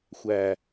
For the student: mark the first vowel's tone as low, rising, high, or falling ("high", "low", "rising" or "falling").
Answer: low